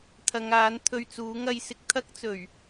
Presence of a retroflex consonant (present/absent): absent